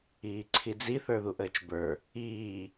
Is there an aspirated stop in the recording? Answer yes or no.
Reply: yes